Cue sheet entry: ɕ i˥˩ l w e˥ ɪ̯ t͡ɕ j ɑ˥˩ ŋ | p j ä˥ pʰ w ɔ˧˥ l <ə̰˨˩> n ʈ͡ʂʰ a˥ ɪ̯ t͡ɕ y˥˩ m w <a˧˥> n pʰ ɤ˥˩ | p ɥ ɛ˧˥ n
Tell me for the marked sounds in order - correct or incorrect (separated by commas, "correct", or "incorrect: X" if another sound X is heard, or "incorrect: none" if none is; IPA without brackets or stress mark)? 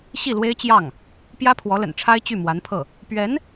correct, correct